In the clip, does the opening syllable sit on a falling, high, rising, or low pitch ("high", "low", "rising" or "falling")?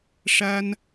high